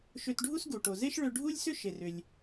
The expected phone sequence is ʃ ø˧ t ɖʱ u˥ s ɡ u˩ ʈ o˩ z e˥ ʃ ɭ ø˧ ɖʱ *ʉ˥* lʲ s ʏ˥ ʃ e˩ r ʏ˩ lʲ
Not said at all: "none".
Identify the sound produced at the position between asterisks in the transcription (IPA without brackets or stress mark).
u˥